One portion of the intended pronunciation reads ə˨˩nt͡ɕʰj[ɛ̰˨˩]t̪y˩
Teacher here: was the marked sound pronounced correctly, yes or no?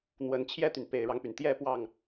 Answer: no